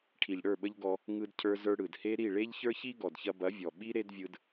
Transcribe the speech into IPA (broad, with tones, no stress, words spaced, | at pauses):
ʈʰi˨ʎɽə˞˦˨ɓə˧ʎ ɡɔ˧ | ŋɯ˧dcʰə˞˧zə˞˧ ɽɯ˨dhe˦ ɾi˦˨ɭe˦ʎçə˞˦çi˦ ɡɔ˨dçɐ˧bɐ˨˦vʲɔ˨ ɓi˦ ɾe˦dvʲɯ˧d